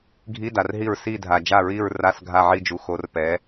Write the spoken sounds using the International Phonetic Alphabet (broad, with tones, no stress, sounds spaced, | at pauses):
ɡʱ i˧˥˧ d a˨ r ɦ i˦˨ ɹ s i˦˨ dʱ a˨ d͡ʒ a˦˨ ɹ i˦˨ ɹ r a˧˥˧ s ɡʱ a˦˨ ʕ i˦˨ d͡ʒ u˨ x o˨˥ r p ɛ˨˥